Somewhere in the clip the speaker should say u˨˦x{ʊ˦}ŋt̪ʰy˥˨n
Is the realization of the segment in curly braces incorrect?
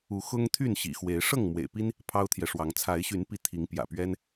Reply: no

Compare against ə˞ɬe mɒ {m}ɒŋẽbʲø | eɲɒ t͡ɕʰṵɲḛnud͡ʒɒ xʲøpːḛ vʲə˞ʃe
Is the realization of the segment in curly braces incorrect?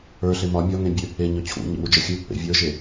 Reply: yes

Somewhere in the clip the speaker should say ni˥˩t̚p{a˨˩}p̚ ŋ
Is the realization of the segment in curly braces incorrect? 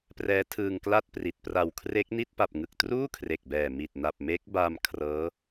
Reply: no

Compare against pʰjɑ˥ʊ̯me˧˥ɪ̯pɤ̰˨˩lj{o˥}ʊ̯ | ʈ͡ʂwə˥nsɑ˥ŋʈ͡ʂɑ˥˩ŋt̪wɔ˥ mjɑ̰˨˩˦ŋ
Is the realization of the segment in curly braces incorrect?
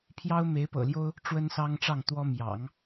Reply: no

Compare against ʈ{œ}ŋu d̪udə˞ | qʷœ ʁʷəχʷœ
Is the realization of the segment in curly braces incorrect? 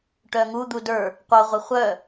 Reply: no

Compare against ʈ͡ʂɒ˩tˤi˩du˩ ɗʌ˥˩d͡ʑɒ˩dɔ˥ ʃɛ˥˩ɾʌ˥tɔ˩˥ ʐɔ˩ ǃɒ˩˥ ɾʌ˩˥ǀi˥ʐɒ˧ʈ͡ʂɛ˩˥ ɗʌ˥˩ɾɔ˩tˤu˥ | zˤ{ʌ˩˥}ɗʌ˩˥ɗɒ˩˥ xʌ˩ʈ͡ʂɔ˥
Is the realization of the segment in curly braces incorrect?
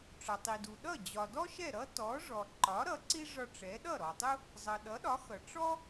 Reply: yes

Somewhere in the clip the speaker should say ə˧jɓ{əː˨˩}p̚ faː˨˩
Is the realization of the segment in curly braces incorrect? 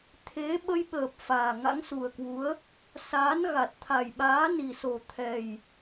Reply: no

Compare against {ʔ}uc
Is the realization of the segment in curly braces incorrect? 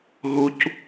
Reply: yes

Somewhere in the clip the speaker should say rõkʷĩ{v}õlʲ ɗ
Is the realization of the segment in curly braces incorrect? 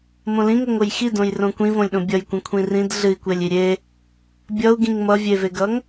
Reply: no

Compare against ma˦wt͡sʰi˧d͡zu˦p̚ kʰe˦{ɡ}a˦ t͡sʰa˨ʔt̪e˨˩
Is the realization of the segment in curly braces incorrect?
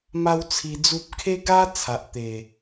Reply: no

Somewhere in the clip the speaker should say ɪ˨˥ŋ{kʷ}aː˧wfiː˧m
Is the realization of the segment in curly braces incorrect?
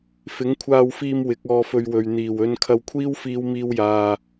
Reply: yes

